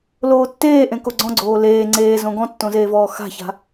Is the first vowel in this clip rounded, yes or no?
yes